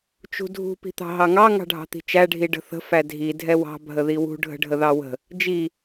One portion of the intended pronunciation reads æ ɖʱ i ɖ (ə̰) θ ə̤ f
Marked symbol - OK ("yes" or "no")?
no